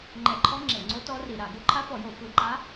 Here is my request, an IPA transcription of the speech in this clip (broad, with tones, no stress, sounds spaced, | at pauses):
ŋ͡ǃ ɛ˧˩˧ ǃʰ ɔ˧˥ ŋ͡ǁ e˧˩˧ ŋ͡ǀ o˧˥ t ɔ˧˥ r i˧˩˧ ɾ a˧˩˧ ɡ o˧˥ ǃʰ a˧˥ f ɔ˧˩˧ j o˧˩˧ f ɯ˧˩˧ ǃ a˧˥